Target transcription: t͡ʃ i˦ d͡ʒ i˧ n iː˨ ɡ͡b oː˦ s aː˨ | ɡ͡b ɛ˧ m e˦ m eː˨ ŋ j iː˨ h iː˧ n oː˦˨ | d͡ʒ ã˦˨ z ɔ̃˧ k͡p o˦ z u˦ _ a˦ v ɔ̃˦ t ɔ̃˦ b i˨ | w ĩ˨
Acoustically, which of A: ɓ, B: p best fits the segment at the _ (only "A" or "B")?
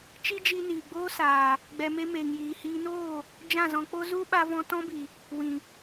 A